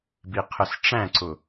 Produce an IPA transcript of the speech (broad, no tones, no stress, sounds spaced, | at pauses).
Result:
b i qʰ ə s ʈ͡ʂ æ̃ ǀ ʊ